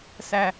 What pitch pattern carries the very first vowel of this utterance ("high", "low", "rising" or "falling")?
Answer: low